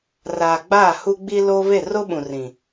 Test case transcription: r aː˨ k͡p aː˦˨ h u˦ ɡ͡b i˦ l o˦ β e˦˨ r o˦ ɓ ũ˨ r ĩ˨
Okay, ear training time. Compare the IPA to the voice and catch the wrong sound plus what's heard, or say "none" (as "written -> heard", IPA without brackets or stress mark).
k͡p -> ɡ͡b